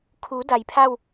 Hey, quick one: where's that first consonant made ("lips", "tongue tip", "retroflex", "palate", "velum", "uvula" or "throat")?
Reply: velum